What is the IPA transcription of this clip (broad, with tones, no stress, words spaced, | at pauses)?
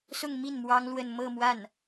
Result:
sʊ˥˧ŋmi˥˩n mwɑ˥ŋlwə˥˧n mɤ˥˧mwa˥˩n